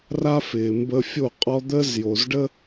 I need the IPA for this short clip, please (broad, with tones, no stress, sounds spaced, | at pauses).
r a˥ f ɪː˩ m b ə˧ fʲ o˥˩ qʼ ɔ˥ d̪ əː˥ z j o˩ z ɖ ə˥